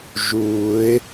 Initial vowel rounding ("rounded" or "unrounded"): rounded